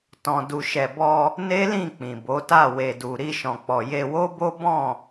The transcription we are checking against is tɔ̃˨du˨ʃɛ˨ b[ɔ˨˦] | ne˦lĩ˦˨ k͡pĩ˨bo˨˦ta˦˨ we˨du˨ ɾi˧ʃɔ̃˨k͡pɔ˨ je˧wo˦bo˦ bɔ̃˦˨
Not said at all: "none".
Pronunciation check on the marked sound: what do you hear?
ɔ˧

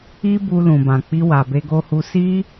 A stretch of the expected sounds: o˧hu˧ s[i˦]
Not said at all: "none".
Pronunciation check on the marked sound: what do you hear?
i˦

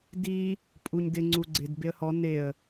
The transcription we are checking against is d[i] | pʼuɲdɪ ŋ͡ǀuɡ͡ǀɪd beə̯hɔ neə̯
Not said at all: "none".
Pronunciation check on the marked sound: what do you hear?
i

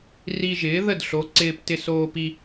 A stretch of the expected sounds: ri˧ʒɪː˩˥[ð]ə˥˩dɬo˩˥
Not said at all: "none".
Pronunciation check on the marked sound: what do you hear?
ð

